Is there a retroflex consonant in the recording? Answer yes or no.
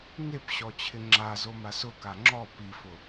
no